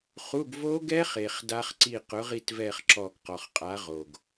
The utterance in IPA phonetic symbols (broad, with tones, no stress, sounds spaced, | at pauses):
χ u˧˥˧ ɡ v o˦˥ ɡ ɛ˦˥ χ e˨˩ χ d a˦˥ χ ǀ i˦˨ q ʊ˨˥ ʁ i˦˨ t v ɛ˦˨ χ ǁ ɔ˦˨ ɡ q ɔ˨˩ χ qʼ a˨˥ ʁ o˨˩ ɡ